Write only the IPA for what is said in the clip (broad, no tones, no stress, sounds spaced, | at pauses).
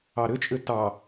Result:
ɑ ɾ ʏ t͡ʃʼ ʏ t ɑ